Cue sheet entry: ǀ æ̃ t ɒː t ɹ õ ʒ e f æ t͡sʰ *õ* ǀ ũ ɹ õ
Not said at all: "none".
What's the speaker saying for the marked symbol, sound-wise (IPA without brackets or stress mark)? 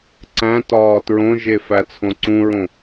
õ